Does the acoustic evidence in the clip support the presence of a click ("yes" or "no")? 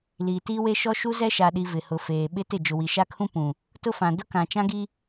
no